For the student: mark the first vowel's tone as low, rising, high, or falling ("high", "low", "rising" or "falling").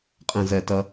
low